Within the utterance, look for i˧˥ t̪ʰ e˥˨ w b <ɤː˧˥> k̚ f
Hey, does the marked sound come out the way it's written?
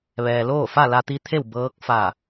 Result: yes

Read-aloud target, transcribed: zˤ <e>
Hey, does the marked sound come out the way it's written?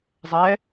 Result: no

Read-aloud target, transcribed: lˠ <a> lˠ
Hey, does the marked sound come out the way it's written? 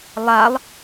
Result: yes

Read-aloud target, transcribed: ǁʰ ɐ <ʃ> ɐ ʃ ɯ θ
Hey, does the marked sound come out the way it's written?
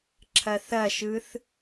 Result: no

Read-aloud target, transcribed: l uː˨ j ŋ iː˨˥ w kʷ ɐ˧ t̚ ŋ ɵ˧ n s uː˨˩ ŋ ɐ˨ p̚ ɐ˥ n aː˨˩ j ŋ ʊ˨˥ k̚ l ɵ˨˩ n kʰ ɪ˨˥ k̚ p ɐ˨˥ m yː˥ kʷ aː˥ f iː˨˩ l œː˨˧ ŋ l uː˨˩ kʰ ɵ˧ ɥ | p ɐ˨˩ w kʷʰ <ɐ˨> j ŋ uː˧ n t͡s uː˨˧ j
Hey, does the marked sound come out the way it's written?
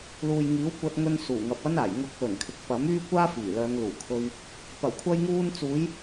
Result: no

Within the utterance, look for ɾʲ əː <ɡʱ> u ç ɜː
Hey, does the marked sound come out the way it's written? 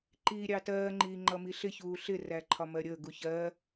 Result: no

